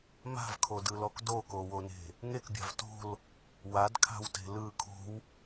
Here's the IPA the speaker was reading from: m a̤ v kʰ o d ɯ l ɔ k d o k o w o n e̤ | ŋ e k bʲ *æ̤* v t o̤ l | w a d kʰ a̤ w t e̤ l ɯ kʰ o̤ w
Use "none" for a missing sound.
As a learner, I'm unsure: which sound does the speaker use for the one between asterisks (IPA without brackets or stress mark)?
a̤